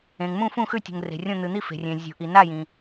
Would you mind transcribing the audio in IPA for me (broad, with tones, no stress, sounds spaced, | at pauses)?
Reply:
ẽ˩ ŋ m ũ˥˨ f ũ˥˨ x ʉ˥˨ tʲ ṳ˩ ŋ r e̤˩ rʲ õ˥˨ n̪ ɨ˩ n̪ i˥˨ f e̤˩ rʲ ẽ˩ zʲ ṳ˩ ʔ i˩ n a˥˨ j ĩ˩